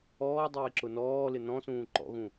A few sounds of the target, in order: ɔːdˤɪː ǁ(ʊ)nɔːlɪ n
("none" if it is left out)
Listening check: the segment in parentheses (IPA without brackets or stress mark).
ʊ